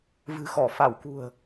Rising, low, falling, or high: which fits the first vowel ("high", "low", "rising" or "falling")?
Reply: low